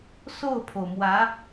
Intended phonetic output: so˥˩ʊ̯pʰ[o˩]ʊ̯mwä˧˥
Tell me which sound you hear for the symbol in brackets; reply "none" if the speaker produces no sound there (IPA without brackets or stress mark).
o˩